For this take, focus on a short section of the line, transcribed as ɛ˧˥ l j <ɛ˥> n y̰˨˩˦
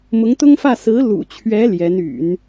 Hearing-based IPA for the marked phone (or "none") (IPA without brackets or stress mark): ɛ˧˥